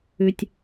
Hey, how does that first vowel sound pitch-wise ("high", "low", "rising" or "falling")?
low